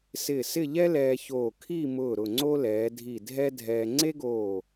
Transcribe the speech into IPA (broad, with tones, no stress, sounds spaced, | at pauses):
s ɪː˧˩ s ɪ˥˧ ʎ ɛ˥ l ɛː˧ ç oː˧˩ kʰ i˥˧ m ʊː˧˩ ɾ ʊ˧˩ ŋ͡ǀ o˥ l ɛː˩˧ dʱ i˧˩ dʱ ɛ˥ dʱ ɛː˧ ŋ͡ǀ e˥ ɡ oː˧˩